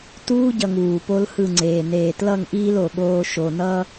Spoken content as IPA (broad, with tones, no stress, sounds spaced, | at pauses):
t uː˦ ɟ ʌ˨ ŋ uː˨ p o˦ l h ɯ˦˨ ŋ͡ǀ eː˨ n eː˨ t l ʌ˦˨ ŋ ʔ iː˦ l o˨ ɠ oː˦ ʃ o˨ n ʌ˦